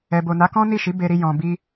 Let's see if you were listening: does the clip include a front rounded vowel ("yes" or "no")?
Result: no